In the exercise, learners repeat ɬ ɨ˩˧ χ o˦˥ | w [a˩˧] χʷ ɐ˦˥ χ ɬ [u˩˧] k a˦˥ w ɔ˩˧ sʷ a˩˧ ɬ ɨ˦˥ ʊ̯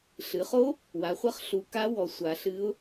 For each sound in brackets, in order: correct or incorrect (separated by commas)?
correct, correct